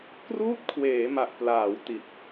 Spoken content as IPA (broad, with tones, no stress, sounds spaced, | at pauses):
k r uː˥˩ t̚ kʰ w eː˩˦ m a˨˩ ʔ p l aː˩˦ w t i˨˩ t̚